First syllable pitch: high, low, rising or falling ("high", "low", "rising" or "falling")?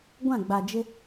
falling